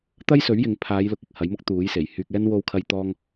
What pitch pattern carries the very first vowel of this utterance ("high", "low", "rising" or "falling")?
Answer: high